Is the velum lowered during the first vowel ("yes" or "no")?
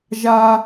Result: no